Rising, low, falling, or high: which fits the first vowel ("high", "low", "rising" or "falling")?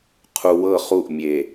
low